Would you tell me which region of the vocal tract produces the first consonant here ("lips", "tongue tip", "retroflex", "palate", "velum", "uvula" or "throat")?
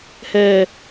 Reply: throat